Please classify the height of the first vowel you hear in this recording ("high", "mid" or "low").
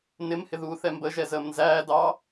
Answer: high